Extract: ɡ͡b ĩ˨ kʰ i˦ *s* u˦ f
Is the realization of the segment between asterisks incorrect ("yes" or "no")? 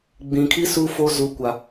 no